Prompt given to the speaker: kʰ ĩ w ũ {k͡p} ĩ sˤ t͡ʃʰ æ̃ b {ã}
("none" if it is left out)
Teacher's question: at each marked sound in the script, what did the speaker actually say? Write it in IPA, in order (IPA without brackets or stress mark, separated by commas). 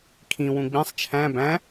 ɡ͡b, æ̃